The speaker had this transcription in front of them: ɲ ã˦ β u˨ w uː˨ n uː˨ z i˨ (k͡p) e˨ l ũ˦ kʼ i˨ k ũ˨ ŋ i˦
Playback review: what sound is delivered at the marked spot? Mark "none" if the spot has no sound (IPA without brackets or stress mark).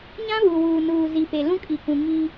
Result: p